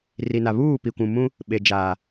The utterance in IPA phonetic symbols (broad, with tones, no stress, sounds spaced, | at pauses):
r i˨ n a˨ β uː˦˨ p i˨ kʷ ũ˨ m ũ˦ | ɓ e˨ d͡ʒ aː˨